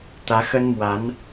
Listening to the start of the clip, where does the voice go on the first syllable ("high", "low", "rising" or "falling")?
rising